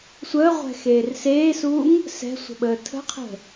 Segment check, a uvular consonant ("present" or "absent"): present